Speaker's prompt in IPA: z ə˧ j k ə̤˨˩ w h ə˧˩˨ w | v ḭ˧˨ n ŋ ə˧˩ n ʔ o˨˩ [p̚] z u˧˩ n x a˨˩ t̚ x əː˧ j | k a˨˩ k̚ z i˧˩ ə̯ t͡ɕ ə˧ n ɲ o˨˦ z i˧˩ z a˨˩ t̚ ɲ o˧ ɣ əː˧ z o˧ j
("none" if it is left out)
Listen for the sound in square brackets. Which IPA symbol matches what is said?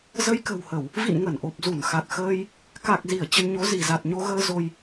p̚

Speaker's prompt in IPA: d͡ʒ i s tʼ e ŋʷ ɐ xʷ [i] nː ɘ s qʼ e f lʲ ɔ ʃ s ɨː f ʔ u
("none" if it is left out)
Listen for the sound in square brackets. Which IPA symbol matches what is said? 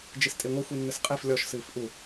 i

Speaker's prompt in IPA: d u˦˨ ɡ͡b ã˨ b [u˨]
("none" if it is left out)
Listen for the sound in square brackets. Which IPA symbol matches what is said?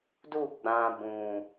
ũ˨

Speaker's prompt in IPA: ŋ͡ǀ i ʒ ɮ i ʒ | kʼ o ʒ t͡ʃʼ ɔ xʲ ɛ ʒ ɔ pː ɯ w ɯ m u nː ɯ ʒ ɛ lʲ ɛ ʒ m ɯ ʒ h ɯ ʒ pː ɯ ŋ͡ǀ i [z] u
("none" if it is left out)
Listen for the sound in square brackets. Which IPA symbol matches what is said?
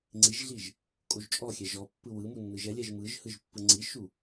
ʃ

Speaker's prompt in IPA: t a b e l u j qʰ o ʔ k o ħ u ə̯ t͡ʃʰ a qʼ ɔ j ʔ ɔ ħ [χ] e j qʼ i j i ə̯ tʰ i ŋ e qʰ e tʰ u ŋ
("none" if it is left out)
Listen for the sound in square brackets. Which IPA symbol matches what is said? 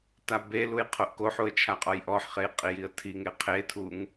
χ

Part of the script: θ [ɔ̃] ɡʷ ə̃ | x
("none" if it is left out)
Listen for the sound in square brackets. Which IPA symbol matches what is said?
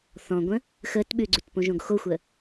ɔ̃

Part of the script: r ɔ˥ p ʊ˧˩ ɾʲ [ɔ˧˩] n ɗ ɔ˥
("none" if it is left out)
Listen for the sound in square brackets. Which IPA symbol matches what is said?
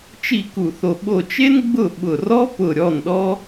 ɔ˥˩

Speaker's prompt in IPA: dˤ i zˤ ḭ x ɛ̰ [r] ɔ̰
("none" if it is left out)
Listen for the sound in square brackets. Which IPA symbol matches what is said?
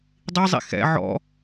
ʕ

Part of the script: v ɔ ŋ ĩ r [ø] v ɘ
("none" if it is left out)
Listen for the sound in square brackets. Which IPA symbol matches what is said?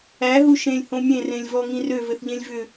ø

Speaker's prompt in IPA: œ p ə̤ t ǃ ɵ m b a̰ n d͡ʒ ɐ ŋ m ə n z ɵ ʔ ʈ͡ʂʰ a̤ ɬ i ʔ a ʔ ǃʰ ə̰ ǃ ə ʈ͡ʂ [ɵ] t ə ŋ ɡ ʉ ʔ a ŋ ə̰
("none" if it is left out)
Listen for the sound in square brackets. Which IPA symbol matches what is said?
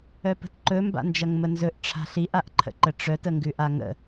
œ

